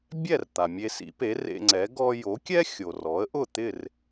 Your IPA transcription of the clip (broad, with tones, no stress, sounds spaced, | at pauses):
bʲ ɛ˥˩ r t̪ a˩ mʲ e˧ s ḭ˩˥ p e˩˥ r ḛ˧ ŋ͡ǀ ɛ˩˥ ɡ ɔ˧ j o˩˥ kʲ ɛ˥ xʲ o˩ r ɔ˩˥ ə̯ ʔ ʊ˥˩ t̪ ɪ˥˩ r